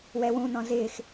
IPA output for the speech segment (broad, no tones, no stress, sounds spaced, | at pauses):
w ɛ w ũ n ɔ̃ z ɪː x